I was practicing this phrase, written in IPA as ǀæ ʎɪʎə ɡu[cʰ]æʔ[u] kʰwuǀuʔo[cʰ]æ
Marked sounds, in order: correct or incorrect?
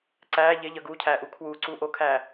correct, correct, incorrect: kʰ

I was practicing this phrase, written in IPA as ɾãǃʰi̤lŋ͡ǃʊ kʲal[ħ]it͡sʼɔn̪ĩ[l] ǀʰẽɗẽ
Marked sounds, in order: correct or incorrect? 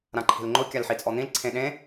correct, correct

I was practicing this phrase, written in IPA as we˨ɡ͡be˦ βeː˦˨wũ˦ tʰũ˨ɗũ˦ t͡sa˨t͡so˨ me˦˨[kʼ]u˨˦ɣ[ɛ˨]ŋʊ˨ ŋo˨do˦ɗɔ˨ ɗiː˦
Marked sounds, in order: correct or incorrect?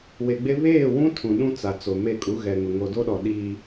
correct, correct

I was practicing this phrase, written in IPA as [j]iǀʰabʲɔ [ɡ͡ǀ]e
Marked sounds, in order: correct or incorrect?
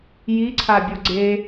correct, correct

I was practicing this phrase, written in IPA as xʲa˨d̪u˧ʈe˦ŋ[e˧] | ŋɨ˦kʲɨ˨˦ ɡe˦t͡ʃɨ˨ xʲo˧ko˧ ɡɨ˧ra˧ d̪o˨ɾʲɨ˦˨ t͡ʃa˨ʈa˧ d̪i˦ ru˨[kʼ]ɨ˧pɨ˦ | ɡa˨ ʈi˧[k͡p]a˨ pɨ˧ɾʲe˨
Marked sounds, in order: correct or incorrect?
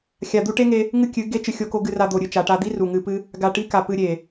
correct, incorrect: ŋ, incorrect: k

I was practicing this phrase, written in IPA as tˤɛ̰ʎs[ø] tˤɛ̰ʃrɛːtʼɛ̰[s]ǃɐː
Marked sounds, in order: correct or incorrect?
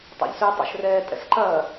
incorrect: ʉ, correct

